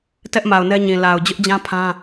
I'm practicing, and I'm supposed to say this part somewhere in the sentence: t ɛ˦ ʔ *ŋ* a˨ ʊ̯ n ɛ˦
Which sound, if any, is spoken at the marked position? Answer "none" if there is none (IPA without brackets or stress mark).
m